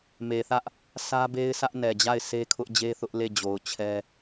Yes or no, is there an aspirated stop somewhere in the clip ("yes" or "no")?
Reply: yes